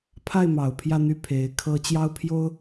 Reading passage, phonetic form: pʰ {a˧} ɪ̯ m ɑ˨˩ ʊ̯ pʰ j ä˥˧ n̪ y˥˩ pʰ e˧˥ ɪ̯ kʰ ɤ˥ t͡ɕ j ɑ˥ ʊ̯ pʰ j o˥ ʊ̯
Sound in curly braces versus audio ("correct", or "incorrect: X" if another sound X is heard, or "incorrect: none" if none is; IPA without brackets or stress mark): incorrect: a˥˩